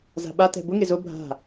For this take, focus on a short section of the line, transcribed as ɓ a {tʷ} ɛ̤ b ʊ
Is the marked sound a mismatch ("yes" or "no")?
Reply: yes